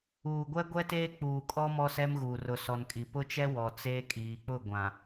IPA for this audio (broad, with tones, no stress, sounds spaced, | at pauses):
uː˨ ɡʷ ɛ˦ ɡʷ ɛ˦ t eː˦ k͡p uː˨ kʼ ɔ˦ m ɔ˦ s ɛ˦ m ɣ uː˨ r ʊ˨ s ɔ˨ n kʼ i˨ p ʊ˦ t͡ʃ ɛ˦ w ɔ˨ t͡s eː˦ kʼ iː˨ k͡p ʊ˦˨ ɡʷ ã˨